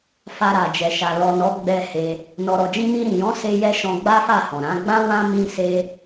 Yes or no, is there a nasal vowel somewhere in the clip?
yes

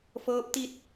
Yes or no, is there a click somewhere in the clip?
no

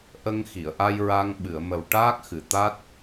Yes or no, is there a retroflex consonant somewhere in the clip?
yes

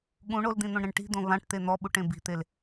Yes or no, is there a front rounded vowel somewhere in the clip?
no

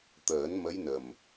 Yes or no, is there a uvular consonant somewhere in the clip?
no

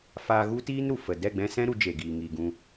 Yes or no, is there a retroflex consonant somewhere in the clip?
no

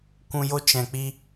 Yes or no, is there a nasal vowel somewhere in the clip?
yes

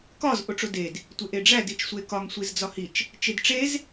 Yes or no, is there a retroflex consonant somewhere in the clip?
yes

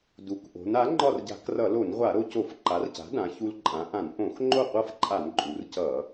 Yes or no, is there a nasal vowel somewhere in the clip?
yes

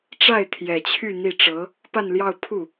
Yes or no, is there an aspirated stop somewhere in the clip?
yes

